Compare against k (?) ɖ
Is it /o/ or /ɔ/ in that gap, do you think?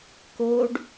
o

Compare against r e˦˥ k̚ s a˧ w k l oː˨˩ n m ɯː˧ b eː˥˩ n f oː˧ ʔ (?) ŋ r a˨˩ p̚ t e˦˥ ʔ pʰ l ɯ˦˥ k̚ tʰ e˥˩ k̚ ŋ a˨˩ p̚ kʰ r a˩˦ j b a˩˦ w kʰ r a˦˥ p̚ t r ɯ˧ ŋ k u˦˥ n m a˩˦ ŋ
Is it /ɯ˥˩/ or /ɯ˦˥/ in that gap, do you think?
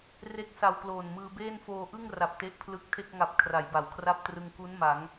ɯ˥˩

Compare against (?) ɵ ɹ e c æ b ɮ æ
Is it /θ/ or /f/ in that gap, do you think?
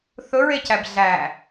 θ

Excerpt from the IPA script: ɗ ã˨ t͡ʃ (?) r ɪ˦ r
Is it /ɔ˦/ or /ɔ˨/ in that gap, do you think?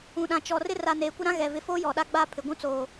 ɔ˨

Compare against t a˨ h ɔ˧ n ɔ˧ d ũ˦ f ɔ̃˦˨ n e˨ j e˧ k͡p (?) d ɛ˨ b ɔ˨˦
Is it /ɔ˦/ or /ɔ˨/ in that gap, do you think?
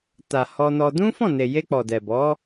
ɔ˨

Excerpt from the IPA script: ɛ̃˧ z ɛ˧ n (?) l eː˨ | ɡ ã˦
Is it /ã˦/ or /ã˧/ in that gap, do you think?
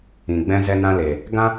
ã˧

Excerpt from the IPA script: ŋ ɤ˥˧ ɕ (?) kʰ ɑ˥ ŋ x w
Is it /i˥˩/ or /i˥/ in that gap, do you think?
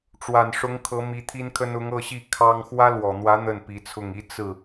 i˥˩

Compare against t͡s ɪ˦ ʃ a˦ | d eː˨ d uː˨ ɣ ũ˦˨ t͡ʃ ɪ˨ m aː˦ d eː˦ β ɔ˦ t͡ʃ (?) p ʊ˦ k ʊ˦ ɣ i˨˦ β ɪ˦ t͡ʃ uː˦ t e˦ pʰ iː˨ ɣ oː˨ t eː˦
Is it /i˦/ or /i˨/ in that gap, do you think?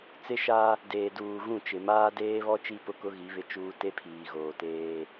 i˦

